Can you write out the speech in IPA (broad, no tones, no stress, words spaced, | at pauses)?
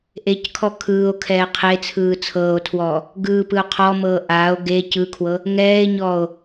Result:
ʔeckʰɔ kʰɯːo̯kʰɛː qʰet͡sʰɯː t͡sʰɤːo̯tʰwɔː | ɡɯːpɯo̯ qʰɔmɤː ʔaːo̯ ɡe cɯkʰwɤ | ŋɛːe̯ɲɔːo̯